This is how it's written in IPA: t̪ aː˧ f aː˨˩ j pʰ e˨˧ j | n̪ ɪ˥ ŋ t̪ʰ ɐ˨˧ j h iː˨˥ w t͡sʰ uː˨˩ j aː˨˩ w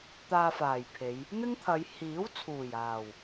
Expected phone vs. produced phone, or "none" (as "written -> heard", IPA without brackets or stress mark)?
none